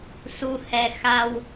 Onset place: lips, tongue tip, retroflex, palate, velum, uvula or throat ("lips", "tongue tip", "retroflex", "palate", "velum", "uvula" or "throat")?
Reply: tongue tip